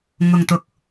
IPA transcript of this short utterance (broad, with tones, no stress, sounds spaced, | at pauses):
ŋ ʊ˨ ŋ t̪ ʊ˨ k̚